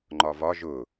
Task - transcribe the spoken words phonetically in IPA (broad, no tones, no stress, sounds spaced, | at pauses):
ŋ͡ǃ ɒ v ɒ ʒ ʊ